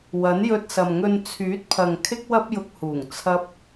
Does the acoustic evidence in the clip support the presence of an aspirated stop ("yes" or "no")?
yes